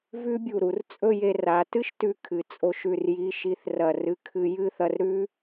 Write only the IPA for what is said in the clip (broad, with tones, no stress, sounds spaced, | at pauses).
v ʉ˥ bʲ u˧˩ ɾ u˩˧ r t͡sʼ ɵ˥˧ j e˧ r a˩˧ t ɨ˥ ʃ t ʉ˧ kʰ ɨ˩˧ t͡sʼ o˧ ʃ ʉ˧˩ r j i˩˧ ʃ i˩˧ θ r ɐ˧˩ r ɨ˧ kʰ ɨ˧ j ɨ˥˧ θ ɐ˧ r ɾ ʉ˥